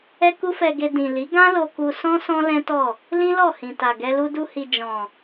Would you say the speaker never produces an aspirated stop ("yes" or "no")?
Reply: yes